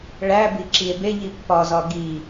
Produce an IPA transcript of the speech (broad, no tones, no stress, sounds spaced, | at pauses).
ɭ æ b i ǁ i e̯ b e ʎ i pː ɒ z ɒ ɡ i